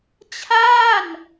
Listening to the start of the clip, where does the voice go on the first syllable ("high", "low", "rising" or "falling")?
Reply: falling